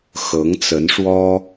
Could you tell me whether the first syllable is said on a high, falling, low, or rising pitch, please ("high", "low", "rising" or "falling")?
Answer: rising